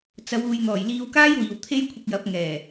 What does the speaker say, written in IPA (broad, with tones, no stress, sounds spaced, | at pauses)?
t͡s ɐ˨˧ w uː˨ j n̪ ɔː˨˩ j l iː˧ w k aː˥ j w iː˨ w t̪ʰ e˥ j kʷʰ ɪ˧ k̚ j ɐ˨˥ p̚ ŋ ɛː˨˩